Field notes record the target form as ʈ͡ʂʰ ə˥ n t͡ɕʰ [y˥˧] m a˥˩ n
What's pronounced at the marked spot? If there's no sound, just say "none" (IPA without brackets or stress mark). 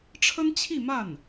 i˥˧